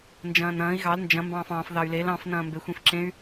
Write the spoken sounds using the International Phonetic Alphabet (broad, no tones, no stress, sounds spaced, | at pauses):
n d͡ʒ ɐ̃ː n ɐ̃ː i̯ ɣ ɑ l n d͡ʒ ɐ̃ m b ɑ̃ː f ɑ̃ː f ð ɑ y̯ l e l ɑ̃ f n ɐ̃ː m b e xʷ ẽ f ǁ ẽ y̯